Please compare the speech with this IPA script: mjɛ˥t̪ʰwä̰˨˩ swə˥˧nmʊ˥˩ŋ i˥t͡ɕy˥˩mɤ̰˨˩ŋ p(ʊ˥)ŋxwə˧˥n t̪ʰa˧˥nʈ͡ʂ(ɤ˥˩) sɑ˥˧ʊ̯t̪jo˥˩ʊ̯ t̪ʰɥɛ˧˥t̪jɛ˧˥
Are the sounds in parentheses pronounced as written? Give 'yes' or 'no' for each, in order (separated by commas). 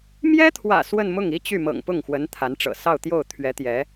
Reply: no, no